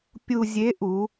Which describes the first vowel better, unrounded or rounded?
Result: rounded